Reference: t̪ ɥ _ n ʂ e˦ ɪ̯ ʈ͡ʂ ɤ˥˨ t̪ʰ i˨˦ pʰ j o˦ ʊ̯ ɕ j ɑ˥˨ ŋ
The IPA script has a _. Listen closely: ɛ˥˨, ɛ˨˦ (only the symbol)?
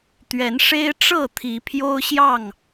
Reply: ɛ˨˦